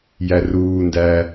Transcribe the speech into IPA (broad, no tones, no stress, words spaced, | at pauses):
jæruːndæː